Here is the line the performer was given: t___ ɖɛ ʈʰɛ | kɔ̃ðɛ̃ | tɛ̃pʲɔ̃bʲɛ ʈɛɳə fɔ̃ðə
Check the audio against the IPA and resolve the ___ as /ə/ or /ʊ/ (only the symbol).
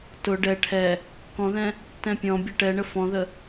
ʊ